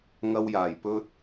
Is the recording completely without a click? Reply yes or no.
yes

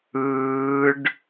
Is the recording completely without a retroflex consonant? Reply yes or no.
no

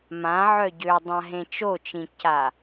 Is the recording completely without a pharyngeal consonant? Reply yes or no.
no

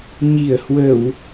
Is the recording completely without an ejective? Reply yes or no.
yes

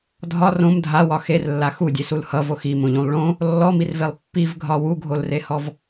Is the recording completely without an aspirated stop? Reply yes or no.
yes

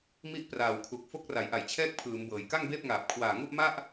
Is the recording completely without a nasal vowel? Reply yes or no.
yes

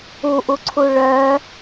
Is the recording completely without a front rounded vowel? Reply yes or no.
no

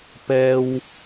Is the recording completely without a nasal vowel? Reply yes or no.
yes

